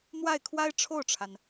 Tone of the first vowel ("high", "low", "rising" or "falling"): falling